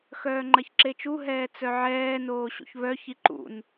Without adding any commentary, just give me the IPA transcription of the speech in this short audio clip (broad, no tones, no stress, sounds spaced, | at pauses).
x œː ŋ͡ǃ ɐ ç ǁ e t͡ʃ u ɦ ɛː t͡s œ ʕ ɛː n oː ɕ ṵ ç β œ ç i ǃ ṵ n